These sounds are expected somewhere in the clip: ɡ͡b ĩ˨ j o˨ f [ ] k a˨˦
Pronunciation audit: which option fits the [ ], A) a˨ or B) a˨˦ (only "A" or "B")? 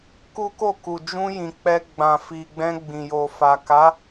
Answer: A